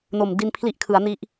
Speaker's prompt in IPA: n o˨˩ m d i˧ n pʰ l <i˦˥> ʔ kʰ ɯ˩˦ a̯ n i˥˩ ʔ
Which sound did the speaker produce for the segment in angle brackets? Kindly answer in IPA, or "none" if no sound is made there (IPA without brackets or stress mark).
i˦˥